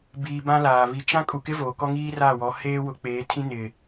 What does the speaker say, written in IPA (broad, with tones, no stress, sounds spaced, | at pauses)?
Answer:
b iː˨ b ã˦ l aː˨ β i˨ t͡ʃ ã˦ kʼ u˨ k ɪ˦ v oː˨ k ɔ˦ ŋ iː˦ r aː˦˨ w ɔ˨˦ h eː˦ w ʊ˨˦ k͡p eː˨˦ tʰ ĩ˦ n ɪ˨